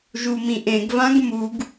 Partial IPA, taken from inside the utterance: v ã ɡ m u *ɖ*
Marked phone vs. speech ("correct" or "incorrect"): incorrect